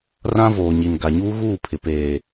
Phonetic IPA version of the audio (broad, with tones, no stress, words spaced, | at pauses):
rã˦voː˨ɲi˨n ɡa˨ɲuː˦ ɣuː˦˨pʰɪ˨ peː˨